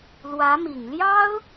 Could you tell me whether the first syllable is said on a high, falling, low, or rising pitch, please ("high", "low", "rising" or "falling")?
rising